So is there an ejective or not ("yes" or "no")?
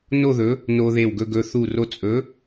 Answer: yes